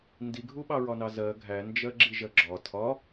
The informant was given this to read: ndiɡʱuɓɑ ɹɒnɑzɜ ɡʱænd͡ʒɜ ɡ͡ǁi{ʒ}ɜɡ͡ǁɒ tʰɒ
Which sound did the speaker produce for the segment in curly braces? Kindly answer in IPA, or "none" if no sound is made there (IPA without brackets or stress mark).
ʒ